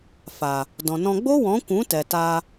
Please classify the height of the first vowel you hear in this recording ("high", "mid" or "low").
low